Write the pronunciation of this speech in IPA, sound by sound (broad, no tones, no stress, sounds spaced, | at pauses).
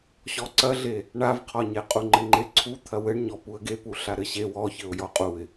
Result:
ɕ ɔ ǀ ɐ ɮ e | ɳ a v qʰ ɔ ɲ e qʼ u ŋ͡ǃ ɘ ŋ͡ǃ e ǀʰ u t̪ʰ ɐ w ɘ ɳ ɲ ɔ p u ə̯ ɡ e p u ɬ a ɾ ɘ ɕ e w ɔ ç ɘ ʊ̯ j ɔ qʼ u ɪ̯